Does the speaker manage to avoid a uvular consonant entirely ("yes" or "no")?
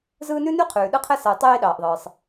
no